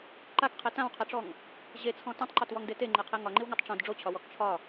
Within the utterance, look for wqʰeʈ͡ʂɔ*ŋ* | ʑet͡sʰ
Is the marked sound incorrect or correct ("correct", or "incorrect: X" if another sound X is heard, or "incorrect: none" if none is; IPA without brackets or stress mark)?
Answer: correct